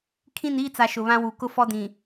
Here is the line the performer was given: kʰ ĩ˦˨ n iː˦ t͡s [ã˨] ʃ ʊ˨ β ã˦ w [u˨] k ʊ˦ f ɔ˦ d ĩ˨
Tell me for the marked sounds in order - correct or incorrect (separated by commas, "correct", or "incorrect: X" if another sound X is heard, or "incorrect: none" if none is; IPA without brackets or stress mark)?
incorrect: a˨, correct